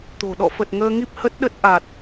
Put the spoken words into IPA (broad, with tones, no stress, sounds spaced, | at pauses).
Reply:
t̪ o̤˨˩ ɗ ɔ̰˧˨ f ə˨˩ t̚ ŋ əː˧ ŋ i˦˥ p̚ h ə˦˥ t̚ ɗ ə˦˥ t̚ ʔ a˨˩ t̚